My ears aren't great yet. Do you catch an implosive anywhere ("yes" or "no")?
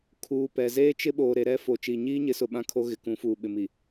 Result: yes